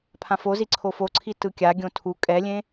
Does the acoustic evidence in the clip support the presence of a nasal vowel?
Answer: yes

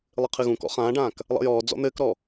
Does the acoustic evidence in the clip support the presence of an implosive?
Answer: no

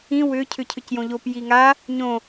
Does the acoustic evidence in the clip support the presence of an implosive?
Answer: no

